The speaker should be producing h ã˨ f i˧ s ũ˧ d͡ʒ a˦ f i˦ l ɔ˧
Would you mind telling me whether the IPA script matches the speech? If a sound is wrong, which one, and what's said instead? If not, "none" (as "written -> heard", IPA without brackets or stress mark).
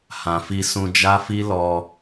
none